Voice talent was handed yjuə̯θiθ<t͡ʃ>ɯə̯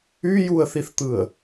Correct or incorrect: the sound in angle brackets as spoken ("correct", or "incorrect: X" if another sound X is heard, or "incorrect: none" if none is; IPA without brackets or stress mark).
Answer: incorrect: t̪